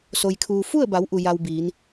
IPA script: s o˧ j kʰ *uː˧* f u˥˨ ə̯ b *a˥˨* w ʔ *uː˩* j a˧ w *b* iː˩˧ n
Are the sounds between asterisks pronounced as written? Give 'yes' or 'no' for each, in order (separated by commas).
yes, no, no, yes